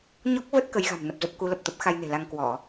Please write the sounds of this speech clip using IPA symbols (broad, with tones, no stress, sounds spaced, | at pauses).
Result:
ɲ ɔ˦˥ k̚ v ə˦˥ t̚ k ə˨˦ j ɣ a̤˨˩ m n ə˨˩ p̚ z ə˦˥ p̚ k u˨˦ l ə˨˩ p̚ t̪ ə˦˥ p̚ x a˧ j n e̤˨˩ l a˧ ŋ k w ɔ˧˩˨